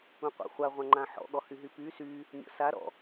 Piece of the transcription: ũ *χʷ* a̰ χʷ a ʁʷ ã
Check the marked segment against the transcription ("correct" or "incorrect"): incorrect